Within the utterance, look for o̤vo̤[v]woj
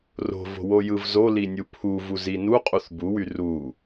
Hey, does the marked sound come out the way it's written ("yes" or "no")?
no